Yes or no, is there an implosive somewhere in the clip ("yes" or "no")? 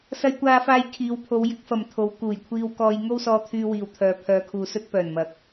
no